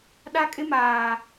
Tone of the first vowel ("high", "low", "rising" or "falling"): high